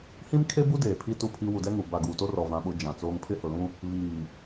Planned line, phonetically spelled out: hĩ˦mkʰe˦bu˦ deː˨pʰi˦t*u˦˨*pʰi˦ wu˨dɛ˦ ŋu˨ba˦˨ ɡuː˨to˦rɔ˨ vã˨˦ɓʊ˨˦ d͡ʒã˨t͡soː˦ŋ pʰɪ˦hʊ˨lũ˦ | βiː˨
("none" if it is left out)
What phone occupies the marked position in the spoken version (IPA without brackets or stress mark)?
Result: u˦˨